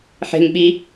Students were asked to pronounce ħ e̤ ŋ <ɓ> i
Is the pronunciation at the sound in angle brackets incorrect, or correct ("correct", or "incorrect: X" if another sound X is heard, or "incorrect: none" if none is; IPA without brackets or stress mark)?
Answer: correct